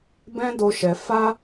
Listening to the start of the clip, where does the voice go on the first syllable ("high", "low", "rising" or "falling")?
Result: high